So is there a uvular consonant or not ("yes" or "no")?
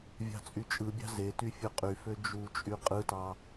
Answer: yes